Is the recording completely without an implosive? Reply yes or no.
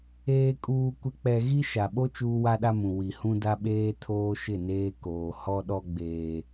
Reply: no